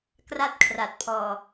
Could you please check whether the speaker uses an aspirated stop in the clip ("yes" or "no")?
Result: yes